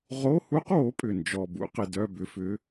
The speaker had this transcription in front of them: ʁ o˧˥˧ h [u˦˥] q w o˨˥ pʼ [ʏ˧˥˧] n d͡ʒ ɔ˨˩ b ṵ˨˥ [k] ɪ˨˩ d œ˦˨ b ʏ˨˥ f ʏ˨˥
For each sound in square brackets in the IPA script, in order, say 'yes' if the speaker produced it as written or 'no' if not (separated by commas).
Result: yes, no, no